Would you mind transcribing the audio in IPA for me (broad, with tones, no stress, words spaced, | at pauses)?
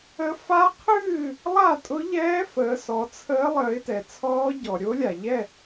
ə˦˥ fa˦˥qʰɨː˥˨ | lˠa˥˨tʼʊ˦˥ʎɛː˦˥ fəː˨˦sɔ˨˦t͡sʰəː˦˥ lˠəː˨˦ɪ̯tɛ˩t͡sʰɔː˦˥ɟɔ˩ ɾʲo˦˥lʲa˩ʎɛ˥˨